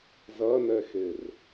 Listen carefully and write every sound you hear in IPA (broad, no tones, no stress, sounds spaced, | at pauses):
z ɐ n ɛ x e r